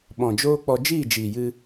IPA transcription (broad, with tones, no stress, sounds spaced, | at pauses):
ɓ ɔ̃˨ d͡ʒ oː˦ k͡p ɔ˧ d͡ʒ iː˦˨ d͡ʒ iː˨ j ɨ˧